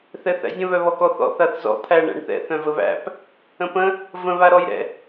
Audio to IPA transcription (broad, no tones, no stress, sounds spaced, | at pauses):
θ ɛ θ æ̰ zʲ ə̃ β œ β ɔ k ɔ θ ɔ̰ θ a θ z ɔ̰ t̪ʰ æ ɳ æ̰ ɳ θ ɛ̰ θ œ̃ v ə β æ̰ p | ə̃ p ə̃ | v ə̃ β a ɾ ɔ j ɾ ɛ̰